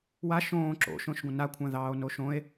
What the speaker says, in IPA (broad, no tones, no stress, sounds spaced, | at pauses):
w a ʃ õː ǁ o̰ ʃ õ ʃ ɡʷ ə̃ n a kʷʰ ã ð ɑː o̯ n o ʃ õ e̯